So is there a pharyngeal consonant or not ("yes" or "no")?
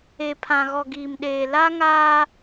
no